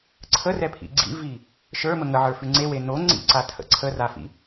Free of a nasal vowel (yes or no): yes